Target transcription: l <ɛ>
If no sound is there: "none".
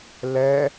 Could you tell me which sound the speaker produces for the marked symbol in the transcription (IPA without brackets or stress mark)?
ɛ